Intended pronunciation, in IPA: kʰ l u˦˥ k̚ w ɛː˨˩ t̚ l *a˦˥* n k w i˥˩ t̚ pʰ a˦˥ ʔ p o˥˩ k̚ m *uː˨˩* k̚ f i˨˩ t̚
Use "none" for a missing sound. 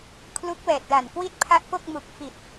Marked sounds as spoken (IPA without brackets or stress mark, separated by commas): a˨˩, u˨˩